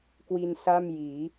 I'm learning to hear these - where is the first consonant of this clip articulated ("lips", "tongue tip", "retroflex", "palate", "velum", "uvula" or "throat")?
velum